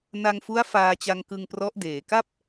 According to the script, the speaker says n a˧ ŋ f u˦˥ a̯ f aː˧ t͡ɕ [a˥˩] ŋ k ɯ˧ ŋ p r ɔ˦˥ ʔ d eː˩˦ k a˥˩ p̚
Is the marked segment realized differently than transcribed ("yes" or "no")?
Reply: yes